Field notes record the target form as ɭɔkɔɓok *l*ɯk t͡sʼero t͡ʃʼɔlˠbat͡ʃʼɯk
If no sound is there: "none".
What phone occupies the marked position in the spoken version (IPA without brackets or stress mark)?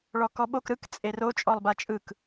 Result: ɾ